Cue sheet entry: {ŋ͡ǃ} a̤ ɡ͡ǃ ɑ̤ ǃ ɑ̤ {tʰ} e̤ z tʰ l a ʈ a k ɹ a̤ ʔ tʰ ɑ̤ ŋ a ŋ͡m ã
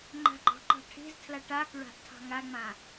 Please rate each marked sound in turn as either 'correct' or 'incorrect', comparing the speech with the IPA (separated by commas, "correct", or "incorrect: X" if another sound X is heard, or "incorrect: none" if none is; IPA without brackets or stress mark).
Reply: correct, incorrect: ʈʰ